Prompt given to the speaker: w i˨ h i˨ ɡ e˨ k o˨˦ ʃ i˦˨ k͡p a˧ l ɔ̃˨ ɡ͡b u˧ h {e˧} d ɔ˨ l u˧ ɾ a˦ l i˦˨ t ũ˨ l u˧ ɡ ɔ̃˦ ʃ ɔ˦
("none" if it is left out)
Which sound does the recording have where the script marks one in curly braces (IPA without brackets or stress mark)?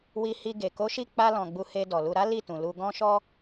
e˧